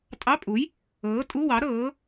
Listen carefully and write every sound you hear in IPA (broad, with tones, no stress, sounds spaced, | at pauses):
tʼ ɑ˧˥˧ pʼ u˨˥ j | ɤː˨˥ tʼ u˧˥˧ w ɑ˨˥ ɾ ɤː˨˥